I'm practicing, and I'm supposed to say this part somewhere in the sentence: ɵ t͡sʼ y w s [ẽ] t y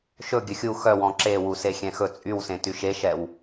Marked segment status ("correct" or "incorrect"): correct